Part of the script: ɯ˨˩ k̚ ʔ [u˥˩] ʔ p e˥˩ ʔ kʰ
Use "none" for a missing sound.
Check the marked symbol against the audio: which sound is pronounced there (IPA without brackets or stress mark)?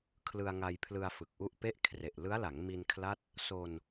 u˦˥